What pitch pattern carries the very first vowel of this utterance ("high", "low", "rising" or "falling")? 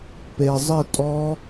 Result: low